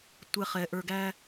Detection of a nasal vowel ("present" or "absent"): absent